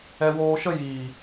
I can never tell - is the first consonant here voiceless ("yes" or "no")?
no